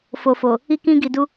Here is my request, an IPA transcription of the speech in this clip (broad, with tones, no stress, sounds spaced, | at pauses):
f o˨ f o˨ | i˧ k ĩ˧ ɡ i˨ d u˧